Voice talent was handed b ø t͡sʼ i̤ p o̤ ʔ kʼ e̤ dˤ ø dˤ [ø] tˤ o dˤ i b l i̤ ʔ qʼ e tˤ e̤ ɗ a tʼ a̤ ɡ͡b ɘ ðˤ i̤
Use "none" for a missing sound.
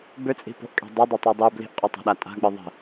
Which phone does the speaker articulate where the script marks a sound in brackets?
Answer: ø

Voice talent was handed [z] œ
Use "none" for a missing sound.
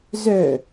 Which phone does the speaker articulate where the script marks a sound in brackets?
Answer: z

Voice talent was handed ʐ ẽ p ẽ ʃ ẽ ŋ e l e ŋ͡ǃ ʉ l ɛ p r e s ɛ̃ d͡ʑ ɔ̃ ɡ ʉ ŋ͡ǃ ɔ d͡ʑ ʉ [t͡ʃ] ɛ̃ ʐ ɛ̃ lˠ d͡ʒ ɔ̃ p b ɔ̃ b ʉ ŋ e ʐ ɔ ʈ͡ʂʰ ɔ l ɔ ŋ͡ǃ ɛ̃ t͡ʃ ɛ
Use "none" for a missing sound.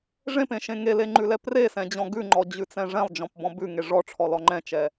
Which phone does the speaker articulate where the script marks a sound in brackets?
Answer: t͡s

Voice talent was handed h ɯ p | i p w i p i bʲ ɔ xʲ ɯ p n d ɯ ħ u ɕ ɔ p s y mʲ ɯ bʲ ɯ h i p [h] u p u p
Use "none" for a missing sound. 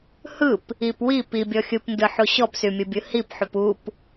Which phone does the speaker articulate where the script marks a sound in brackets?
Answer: ħ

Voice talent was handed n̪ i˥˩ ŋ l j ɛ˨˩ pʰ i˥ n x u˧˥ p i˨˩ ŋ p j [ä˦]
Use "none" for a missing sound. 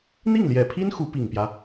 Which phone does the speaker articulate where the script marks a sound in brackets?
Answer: ä˦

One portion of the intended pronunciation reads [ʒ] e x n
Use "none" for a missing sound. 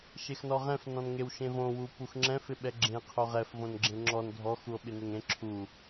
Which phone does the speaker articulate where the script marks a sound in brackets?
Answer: ʃ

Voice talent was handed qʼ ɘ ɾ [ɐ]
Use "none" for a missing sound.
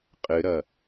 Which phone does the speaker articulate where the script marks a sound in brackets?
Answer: ɐ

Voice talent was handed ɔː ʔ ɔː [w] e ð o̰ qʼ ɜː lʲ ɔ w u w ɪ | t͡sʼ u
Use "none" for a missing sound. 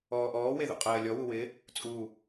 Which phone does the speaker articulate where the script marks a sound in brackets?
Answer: w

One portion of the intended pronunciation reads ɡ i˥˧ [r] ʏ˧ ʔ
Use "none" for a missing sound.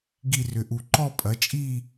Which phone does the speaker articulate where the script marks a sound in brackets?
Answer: r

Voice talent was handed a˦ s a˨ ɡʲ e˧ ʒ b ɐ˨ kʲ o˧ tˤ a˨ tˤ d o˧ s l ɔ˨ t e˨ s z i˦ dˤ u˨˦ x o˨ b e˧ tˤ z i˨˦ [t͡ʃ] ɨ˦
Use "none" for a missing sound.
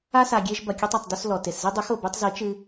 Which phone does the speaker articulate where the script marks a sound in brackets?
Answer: t͡ʃ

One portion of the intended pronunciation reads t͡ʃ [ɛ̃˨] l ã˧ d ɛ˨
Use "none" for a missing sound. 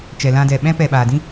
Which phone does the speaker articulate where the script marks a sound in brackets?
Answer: ɛ˨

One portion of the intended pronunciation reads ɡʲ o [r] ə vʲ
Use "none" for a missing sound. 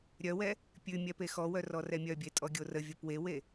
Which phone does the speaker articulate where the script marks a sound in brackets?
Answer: r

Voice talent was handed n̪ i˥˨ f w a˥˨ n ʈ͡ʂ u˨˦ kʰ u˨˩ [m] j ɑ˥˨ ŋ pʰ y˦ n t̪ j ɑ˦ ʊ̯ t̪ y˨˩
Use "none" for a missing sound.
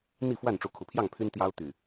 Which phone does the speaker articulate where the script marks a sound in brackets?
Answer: pʰ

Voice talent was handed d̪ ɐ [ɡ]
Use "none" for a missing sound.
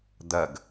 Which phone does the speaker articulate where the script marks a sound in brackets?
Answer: ɡ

